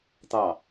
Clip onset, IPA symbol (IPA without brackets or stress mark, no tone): t̪